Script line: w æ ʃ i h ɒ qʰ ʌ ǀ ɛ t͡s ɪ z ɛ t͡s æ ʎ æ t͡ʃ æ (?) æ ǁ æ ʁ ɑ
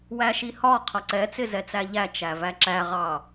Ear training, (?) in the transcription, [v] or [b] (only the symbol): v